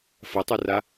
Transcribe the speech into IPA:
fɐtˤura

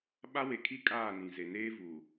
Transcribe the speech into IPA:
ɓa˦we˨kʰi˦ kʼaː˦˨nĩ˨ze˨ neː˦vu˨

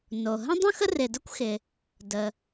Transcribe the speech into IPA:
no˩ɦə̃˥dˤũ˥x ə˥rɪ˩də˥kʷxɪ˩ | də˩

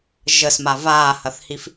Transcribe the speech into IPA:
ʒəsma vaːhɐθhif

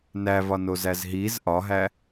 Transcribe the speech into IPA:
nævɒnozæz ɦiz ʔɒɦæ

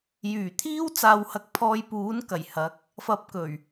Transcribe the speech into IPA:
jyː˨˩t̪ʰiː˥w t͡saː˧whɐ˧k̚ pʰɔː˧jpuː˨˥nkɐ˨˩j hɐ˨˥k̚ | fɐ˧p̚kɵ˨˩ɥ

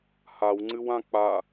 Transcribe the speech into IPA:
hawŋ͡ǀɨwã k͡pa

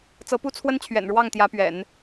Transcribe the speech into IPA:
t͡sɤ˧˥pu˥t͡sʰwə˥nt͡ɕʰɥɛ̰˨˩n ɻwɑ˥˩ŋt̪jä˧˥pɥɛ̰˨˩˦n

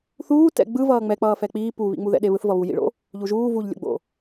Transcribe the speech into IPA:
θuː tɛ̰ɡ͡bɯ vʌːŋ͡mɛk͡pʌː fɛk͡piː puβḭ ŋ͡muðɛ̰ɗeβɯθ vʌβu jḭɭo̰ | ʎuʒuː vuʎlʲo̰ɡ͡bo̰

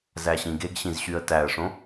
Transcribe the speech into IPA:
zæɕĩɡeɡɕĩz ɕyə̯tæə̯ʂõ

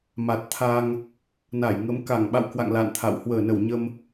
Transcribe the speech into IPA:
ma˨˩t̚t̪ʰa˧ŋ | na˧˩jŋə˨˦m ka˧˩ŋɓa̰˧˨wkwa̰˧˨ŋ la̰˧˨nt̪ʰa̰˧˨w hwəː˧˩nə˧˩wɲə˧m

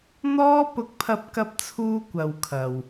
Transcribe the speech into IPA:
n̪ɔː˥ pʊ˧k̚pʰɐ˧p̚kɐ˧p̚t͡sʰuː˧ kʷɐ˨w kʰɐ˨w

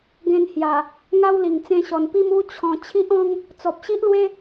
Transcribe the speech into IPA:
ɡẽ˧nhja˨˩ | ŋa˦wli˨˩ŋ t͡sẽ˧ɕɔ˨˩npi˥˧m u˦ t͡ɕʰɔ̃˧ t͡ɕʰi˦ʔɔ̃˦ŋ | t͡sɔ˨p̚ɕi˦ʔlwe˦

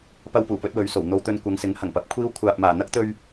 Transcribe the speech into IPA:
pɐ˧wpuː˨˩pɵ˧t̚ wɵ˨˧ɥso˨˩wn̪o˧wt̪ɵ˧n kʷɐ˨˧ŋsɪ˨˥ŋ hɐ˨˩ŋpɐ˨˥p̚kʷʰiː˥w kʷʰaː˨p̚maː˨˩ n̪ɐ˥k̚t̪ɵ˧ɥ

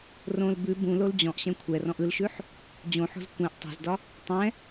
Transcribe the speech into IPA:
rõl bʉ bũ lold͡ʑɔ̃ʔɕɛ̃ kʷʰɛrɔ̃ʔ ɯlʃʉħ | d͡ʑõħo̤z kʷɛ̃ʔ tˤɛ̤zdɒ | tˤɛ̃

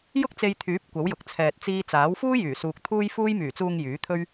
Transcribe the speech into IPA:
jʊ˥k̚t͡se˧jt̪ʰyː˨˥p̚ kʷɐ˨˥wjʊ˨k̚t͡sʰɛː˨t̚ t͡siː˧t͡saː˨˥w fuː˥jyː˨˩ suː˨k̚ t̪ʰuː˧jfuː˧jmyː˨˩t͡suː˨ŋ jyː˨˥t̪ʰɵ˥ɥ

